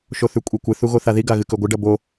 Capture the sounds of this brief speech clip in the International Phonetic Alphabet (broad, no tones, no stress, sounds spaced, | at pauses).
ʃ o θ ʉ kʷʼ i kʷ ɨ θ u ɣ o θ a ð i ɡ a ɣ ɨ k ɵ ɡʷ ɨ ɖ ɐ b o